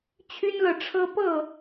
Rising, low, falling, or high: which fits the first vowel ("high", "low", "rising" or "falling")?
high